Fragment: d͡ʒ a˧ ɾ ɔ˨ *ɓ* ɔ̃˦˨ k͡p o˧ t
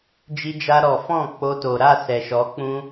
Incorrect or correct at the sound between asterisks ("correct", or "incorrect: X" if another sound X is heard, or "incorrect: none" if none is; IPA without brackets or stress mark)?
incorrect: f